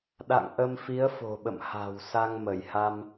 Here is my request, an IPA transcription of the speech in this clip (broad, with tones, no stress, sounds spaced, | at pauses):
ɗ a̰˧˨ ŋ ʔ ə˧ m f i˨˦ ə̯ f o̤˨˩ ɓ ə̰˧˨ m h a̤˨˩ w s a˧ ŋ m ə˧˩ j h a˧ m